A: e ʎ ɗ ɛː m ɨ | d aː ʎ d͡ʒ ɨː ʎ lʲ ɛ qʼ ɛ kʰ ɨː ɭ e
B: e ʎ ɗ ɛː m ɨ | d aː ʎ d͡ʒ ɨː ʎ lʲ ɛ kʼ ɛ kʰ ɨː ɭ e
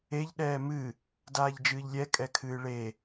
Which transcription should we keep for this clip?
B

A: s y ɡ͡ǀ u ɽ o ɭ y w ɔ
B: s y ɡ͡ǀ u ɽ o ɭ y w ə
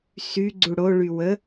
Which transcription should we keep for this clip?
B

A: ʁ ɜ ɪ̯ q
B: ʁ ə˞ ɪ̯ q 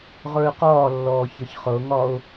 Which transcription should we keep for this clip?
B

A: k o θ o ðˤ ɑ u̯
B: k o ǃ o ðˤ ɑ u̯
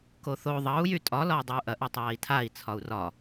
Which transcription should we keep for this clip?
A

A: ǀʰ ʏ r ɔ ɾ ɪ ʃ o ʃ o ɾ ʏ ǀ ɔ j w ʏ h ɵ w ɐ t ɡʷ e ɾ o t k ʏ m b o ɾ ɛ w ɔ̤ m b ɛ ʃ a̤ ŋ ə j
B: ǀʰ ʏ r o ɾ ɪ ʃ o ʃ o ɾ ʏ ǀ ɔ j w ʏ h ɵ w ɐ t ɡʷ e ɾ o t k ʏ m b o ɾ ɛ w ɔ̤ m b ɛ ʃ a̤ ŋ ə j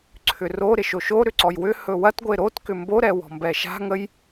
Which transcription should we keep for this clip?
B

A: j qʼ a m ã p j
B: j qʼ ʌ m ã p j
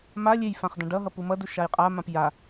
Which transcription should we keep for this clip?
A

